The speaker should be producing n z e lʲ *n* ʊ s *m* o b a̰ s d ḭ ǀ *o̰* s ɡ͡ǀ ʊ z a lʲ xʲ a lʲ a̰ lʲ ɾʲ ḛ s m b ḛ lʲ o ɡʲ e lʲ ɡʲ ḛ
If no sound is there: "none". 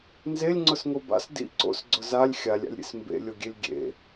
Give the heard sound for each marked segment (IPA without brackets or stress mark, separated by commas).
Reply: ŋ͡ǀ, ŋ, o̰